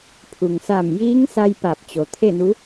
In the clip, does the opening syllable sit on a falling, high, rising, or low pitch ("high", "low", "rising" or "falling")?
low